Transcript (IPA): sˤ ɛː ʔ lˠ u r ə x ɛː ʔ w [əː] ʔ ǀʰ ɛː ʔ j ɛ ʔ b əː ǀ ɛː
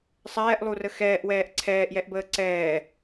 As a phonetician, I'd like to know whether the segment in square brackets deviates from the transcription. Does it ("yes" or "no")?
yes